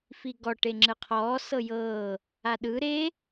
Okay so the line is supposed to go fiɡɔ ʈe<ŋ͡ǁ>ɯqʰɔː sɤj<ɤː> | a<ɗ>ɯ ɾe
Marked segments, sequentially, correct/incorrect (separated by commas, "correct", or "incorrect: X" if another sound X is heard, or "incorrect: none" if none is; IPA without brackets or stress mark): correct, correct, correct